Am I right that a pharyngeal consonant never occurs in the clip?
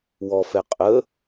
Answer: yes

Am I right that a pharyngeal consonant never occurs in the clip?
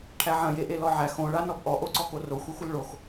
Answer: no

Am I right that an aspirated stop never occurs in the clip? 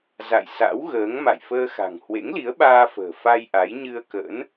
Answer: yes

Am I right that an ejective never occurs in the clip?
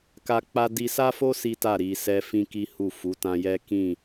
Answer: yes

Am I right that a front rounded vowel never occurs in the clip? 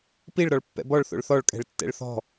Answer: yes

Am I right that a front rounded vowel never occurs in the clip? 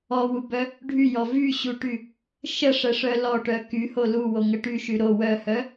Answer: no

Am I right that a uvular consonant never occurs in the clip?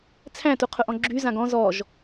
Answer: no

